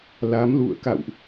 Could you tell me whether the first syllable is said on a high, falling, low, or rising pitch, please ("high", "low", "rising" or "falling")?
rising